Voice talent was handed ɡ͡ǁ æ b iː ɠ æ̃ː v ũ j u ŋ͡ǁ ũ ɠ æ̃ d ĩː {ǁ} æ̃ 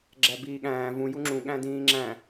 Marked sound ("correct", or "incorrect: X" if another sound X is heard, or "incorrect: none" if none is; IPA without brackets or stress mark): incorrect: ŋ͡ǁ